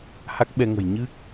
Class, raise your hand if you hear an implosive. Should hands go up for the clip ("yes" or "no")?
yes